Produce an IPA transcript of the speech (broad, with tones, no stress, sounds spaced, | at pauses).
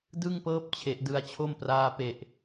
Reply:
d ɯ˥˩ ŋ p ɤː˦˥ p̚ t͡ɕʰ e˨˩ ʔ d ɯ˧ a̯ t͡ɕʰ o˥˩ m p r aː˦˥ p e˨˩ ʔ